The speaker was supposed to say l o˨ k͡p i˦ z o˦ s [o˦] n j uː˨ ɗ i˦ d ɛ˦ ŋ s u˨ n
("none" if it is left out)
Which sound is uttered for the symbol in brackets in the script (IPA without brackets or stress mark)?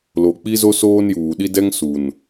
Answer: oː˦